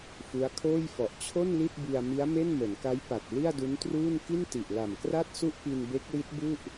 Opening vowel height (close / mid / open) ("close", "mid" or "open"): close